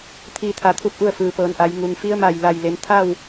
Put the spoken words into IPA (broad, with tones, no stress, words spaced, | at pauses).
t̪ʰiː˥˨t̪ʰa˧t̪ʰu˥˨p̚ʔu˥˨ə̯ fɯː˩pɤː˩˧nʔa˩˧j ŋu˩ŋfi˧˥ə̯ma˧˩j la˧˩jle˩˧n t̪ʰa˥˨w